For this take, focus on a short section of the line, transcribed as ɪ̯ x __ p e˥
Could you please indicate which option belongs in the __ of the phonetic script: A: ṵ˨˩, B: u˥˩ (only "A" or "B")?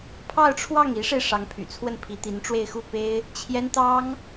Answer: B